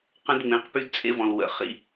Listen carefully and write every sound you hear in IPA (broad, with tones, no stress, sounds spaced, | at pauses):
q ə̃˦ d ŋ͡m ẽ˨˦ q p y˦ d t͡sʼ ḛ˦ v ɔ̃˨ l w ə̰˨ χ ḭ˦